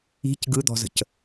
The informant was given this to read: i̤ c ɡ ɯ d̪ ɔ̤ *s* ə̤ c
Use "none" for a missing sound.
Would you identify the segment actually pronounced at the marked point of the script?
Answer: z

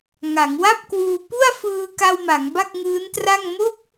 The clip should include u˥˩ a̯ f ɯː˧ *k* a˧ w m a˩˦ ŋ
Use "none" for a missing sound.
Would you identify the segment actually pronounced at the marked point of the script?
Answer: k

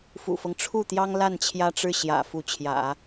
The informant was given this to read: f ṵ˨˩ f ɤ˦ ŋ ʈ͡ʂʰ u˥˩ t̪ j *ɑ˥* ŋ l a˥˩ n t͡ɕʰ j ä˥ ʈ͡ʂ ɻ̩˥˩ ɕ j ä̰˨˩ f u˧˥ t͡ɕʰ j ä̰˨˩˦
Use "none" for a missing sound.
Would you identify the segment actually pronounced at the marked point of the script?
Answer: ɑ˥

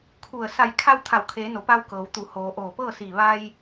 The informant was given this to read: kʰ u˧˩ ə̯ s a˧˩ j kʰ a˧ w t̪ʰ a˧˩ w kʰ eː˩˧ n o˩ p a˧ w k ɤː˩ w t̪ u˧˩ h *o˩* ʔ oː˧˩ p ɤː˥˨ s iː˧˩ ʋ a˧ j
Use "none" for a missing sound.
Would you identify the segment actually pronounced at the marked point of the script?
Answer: oː˩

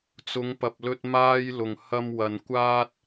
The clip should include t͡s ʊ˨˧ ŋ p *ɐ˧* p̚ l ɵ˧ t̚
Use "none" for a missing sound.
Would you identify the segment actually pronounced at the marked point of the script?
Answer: ɐ˨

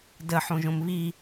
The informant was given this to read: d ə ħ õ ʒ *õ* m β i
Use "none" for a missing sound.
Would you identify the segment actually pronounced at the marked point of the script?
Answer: õ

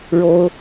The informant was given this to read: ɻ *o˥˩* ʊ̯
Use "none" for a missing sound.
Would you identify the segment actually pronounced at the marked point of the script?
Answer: o˥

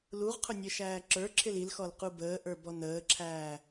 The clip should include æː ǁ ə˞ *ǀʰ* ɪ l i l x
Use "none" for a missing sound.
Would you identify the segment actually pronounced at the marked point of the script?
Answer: ǁʰ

